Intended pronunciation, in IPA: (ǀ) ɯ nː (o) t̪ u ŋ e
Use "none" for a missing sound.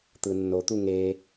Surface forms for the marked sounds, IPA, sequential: t̪, o

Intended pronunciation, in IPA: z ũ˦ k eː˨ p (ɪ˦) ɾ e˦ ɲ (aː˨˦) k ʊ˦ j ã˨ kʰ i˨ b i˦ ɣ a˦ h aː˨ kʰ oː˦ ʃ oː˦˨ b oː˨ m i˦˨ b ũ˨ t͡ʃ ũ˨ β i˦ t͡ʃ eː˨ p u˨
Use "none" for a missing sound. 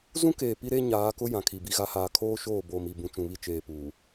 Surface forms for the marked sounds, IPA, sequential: i˦, aː˨˦

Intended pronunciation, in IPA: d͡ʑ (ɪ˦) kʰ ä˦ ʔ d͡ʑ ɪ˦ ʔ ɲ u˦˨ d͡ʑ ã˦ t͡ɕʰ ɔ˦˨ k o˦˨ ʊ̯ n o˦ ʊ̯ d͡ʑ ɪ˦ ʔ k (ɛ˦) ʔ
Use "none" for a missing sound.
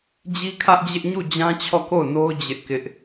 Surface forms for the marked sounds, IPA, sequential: i˦, ɪ˦

